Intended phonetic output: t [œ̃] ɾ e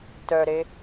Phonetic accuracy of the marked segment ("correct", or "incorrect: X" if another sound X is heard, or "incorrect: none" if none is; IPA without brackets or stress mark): incorrect: œ